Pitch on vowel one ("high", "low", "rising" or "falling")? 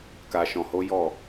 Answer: low